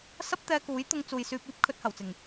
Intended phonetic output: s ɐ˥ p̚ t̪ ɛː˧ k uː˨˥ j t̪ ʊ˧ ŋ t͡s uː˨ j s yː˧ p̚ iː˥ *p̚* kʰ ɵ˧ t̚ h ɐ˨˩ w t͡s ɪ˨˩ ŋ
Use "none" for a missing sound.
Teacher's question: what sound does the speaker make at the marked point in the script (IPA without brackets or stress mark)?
p̚